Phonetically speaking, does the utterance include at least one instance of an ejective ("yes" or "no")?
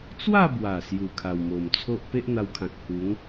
no